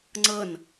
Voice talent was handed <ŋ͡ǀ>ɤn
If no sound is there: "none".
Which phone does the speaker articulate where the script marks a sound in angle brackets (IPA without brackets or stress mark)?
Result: ŋ͡ǀ